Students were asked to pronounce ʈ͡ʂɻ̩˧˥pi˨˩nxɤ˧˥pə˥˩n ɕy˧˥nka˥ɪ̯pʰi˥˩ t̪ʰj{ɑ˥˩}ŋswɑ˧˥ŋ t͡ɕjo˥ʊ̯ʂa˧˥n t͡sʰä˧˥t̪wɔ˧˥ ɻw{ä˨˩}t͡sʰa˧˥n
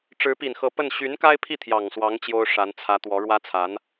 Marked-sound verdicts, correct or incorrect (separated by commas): incorrect, incorrect